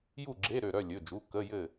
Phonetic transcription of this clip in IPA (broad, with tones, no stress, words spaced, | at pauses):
ju˥˨ɡ͡ǁe˧˥˧ ɾø˧˩ɾœ˥˨lʲɵ˩˧˩d͡ʒu˩˧˩ kə˧˥˧jɘ˥˨